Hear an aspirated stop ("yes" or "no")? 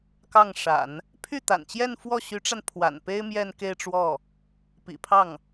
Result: yes